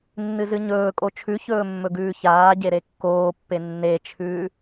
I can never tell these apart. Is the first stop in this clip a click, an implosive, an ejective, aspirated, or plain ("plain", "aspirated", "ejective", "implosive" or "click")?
ejective